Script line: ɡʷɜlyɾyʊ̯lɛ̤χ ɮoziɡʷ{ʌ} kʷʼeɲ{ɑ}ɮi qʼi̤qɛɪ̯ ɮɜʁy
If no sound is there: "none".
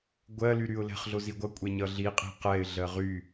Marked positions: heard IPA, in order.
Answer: ʌ, ʌ

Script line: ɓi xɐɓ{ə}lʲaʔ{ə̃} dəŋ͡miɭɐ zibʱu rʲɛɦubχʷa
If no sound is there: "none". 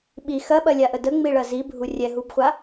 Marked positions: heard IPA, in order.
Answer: ɐ, ə

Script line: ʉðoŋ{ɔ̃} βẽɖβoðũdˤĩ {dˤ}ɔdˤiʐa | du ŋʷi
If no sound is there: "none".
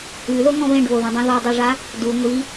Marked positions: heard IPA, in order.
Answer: ɔ̃, ð

